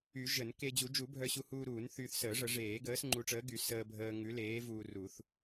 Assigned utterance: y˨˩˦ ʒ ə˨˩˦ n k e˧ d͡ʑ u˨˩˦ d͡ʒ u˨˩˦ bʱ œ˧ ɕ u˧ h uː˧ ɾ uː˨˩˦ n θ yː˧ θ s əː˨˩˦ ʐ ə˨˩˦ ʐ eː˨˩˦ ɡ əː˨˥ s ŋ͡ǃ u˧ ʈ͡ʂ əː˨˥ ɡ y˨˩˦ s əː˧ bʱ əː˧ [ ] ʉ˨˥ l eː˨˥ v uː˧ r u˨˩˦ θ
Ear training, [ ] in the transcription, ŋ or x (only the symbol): ŋ